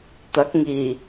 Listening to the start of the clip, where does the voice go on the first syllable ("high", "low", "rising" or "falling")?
rising